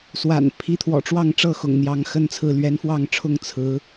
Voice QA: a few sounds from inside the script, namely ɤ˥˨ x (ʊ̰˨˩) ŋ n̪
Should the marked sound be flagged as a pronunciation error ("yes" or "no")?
no